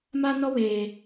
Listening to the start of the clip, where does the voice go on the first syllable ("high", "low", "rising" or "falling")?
high